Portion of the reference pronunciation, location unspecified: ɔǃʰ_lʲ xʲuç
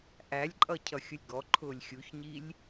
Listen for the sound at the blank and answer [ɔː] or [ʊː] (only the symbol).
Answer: ʊː